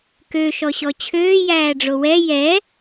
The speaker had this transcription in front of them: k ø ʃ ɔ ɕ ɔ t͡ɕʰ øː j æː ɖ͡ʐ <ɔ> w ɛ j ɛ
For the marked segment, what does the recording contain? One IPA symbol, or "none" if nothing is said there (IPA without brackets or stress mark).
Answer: o